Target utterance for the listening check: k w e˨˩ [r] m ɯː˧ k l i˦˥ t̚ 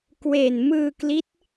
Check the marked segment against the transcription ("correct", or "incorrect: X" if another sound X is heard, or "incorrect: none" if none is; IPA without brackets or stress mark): incorrect: n